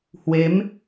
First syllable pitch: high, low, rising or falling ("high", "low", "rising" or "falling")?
rising